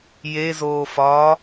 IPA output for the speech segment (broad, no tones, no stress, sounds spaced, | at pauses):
j e z oː f ɒː